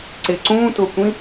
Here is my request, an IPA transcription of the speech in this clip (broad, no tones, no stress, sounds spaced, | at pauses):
ǀ ɪ ǀ ũː t ʊː kʷ ĩ